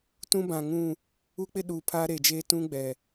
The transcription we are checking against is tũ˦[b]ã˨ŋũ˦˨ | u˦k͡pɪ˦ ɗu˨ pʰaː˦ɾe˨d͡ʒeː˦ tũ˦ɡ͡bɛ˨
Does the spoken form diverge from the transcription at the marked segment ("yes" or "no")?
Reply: no